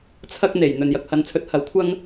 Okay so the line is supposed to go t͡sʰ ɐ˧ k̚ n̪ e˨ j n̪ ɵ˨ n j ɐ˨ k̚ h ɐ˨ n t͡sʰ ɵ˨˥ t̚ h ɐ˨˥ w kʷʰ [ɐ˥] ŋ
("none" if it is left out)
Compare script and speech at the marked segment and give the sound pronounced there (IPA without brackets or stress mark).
ɐ˥